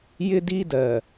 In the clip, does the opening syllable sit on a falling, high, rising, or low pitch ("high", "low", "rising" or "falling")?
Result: high